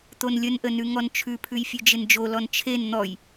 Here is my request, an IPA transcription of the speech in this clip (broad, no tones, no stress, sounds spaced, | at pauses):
t̪ o n lʲ ə n ʔ ə n ʉ ŋ ɔ n t͡ʃʰ ʉ pʰ ʉ j fʲ ʉ d͡ʒ ɪ n d͡ʒ o l ɔ n t͡ʃʰ e n n̪ ɔ j